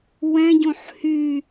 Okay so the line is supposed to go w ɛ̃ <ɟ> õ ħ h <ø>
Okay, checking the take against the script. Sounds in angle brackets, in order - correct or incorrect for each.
correct, incorrect: y

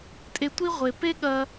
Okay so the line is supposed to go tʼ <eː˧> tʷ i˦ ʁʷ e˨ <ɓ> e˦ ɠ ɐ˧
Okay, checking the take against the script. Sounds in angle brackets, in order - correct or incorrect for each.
incorrect: e˧, incorrect: p

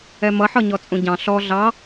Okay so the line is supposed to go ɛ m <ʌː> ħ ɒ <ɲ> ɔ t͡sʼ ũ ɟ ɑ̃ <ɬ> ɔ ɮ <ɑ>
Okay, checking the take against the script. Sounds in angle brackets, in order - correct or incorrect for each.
incorrect: ʌ, correct, correct, correct

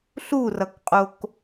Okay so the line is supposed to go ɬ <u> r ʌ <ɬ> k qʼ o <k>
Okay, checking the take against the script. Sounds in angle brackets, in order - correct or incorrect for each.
correct, incorrect: none, correct

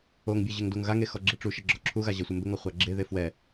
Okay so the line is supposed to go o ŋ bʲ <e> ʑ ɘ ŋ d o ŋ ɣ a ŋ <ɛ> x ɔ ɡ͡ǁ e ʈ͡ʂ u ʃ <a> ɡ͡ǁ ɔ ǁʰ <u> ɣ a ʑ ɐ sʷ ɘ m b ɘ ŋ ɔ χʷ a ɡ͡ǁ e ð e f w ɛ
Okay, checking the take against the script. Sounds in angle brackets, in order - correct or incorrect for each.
incorrect: ɘ, incorrect: e, incorrect: ɐ, correct

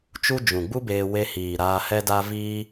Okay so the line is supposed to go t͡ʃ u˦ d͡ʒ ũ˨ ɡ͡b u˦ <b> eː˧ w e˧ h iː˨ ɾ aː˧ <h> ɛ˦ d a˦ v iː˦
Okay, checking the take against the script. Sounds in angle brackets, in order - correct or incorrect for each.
correct, correct

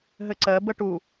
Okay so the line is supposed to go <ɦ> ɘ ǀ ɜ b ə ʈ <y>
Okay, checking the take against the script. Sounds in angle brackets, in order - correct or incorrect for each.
correct, incorrect: u

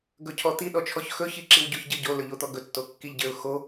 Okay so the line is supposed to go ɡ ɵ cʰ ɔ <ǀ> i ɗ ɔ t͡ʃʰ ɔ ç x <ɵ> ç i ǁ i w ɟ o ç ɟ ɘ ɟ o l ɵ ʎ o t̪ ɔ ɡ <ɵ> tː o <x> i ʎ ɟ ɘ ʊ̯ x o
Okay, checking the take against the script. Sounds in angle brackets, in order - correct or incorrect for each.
incorrect: t̪, correct, correct, incorrect: kː

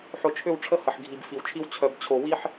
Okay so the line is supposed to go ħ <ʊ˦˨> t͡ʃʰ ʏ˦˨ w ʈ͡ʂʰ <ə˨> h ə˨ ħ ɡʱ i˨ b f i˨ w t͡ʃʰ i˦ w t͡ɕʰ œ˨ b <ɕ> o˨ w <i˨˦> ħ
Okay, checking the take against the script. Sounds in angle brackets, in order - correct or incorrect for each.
incorrect: ʊ˨, incorrect: ə˦, incorrect: t͡ɕʰ, incorrect: i˦

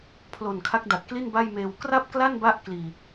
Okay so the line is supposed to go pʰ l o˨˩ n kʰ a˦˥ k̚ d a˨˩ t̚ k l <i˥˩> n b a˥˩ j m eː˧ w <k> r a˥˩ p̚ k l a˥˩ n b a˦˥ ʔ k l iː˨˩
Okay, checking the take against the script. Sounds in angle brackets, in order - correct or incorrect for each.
correct, correct

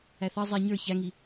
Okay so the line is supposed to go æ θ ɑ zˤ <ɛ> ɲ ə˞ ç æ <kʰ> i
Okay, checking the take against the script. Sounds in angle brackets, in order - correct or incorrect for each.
correct, incorrect: ŋ

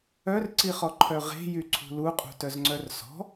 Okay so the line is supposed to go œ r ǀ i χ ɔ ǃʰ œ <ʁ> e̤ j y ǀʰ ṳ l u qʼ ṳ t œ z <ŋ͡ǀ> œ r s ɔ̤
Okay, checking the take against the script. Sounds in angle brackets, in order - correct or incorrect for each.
correct, correct

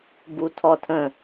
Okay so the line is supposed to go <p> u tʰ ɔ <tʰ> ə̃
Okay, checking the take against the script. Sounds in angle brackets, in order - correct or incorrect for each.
incorrect: b, correct

